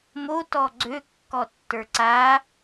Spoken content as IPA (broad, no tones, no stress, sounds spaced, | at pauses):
m o t ɔ ɡ͡ǀ ø kː ɔ tː ə˞ ǀ a